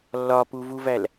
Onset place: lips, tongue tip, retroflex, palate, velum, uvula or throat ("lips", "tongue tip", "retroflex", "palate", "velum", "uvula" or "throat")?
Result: tongue tip